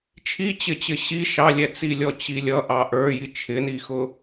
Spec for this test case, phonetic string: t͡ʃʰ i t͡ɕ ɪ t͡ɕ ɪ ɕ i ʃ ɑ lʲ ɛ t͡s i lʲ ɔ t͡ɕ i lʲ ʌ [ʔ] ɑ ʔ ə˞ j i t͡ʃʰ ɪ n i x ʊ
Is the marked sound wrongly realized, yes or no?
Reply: no